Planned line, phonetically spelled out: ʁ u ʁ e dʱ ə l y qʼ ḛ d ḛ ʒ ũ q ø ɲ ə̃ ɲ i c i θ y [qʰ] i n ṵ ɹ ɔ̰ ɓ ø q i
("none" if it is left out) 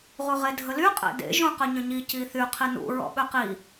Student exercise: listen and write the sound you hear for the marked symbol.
qʰ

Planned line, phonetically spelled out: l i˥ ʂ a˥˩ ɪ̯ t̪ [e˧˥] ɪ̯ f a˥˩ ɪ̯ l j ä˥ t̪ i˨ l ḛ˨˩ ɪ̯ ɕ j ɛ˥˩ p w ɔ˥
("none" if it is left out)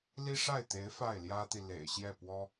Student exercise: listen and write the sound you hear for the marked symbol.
e˧˥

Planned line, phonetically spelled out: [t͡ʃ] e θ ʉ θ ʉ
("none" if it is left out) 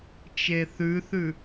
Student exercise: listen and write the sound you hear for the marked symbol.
t͡ʃ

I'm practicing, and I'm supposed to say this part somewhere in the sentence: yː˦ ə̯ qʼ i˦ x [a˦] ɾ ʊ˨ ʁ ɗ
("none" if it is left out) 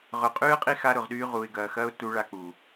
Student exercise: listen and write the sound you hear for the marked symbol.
a˦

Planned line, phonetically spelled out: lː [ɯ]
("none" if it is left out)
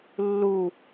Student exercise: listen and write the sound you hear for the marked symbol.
u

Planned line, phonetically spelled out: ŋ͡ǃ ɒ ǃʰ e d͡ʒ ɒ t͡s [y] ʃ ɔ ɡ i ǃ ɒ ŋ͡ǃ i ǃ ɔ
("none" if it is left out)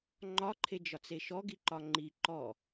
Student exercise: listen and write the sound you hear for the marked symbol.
e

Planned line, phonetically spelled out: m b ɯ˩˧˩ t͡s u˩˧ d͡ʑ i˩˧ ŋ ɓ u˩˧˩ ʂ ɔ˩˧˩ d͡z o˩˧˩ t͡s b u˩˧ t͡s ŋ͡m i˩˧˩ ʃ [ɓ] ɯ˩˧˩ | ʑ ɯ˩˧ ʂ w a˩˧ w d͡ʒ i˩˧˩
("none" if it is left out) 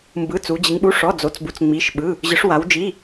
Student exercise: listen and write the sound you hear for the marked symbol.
ɓ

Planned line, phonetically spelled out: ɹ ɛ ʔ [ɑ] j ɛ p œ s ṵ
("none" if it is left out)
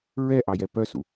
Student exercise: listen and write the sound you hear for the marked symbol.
ɑ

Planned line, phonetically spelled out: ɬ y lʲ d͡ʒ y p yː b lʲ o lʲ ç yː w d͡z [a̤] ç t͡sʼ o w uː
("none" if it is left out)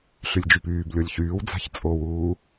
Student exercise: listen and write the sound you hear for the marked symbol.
a̤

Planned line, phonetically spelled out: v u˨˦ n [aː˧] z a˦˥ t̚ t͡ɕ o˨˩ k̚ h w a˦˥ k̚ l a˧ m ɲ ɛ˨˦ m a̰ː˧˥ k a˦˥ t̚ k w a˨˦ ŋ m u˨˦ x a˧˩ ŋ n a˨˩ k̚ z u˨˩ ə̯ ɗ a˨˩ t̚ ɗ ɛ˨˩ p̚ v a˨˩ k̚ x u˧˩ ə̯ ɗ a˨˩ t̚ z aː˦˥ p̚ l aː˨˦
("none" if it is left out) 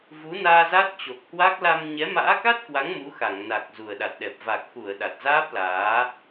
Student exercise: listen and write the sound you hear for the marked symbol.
aː˧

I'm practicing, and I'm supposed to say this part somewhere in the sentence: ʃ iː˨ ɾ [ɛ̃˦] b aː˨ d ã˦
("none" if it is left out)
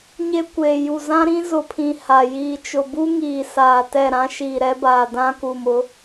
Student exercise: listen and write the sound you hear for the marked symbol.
ɛ˦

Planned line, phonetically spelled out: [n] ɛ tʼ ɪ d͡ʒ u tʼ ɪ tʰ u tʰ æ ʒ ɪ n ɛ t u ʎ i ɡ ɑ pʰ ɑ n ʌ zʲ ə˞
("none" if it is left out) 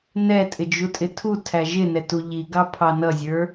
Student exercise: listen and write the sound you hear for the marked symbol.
n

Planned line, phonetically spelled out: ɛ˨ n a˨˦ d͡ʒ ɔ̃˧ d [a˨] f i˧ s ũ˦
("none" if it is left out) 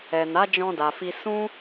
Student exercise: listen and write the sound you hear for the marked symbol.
a˨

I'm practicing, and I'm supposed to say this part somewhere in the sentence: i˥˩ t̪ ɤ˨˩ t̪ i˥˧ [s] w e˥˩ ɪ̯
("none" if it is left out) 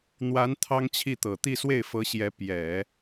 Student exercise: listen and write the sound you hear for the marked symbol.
s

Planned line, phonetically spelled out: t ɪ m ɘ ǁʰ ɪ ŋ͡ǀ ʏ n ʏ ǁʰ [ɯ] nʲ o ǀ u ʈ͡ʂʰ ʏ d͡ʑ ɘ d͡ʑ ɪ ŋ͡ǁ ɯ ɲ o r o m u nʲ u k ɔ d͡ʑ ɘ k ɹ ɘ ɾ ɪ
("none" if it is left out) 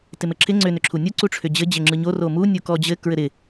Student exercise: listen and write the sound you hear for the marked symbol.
u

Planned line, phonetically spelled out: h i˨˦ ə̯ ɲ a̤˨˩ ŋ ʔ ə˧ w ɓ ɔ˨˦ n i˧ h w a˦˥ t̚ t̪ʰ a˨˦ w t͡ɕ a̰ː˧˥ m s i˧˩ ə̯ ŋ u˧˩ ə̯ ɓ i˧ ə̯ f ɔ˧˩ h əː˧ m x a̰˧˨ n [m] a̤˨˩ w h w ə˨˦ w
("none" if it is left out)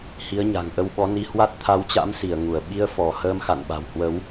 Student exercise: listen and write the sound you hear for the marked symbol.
ɓ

